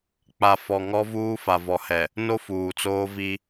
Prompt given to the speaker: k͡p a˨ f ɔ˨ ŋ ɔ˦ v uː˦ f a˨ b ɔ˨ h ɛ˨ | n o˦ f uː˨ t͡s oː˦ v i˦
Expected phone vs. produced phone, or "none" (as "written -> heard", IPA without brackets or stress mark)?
b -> v